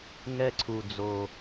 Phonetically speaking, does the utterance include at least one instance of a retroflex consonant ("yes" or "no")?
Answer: no